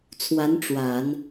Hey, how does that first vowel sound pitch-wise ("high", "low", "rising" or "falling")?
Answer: rising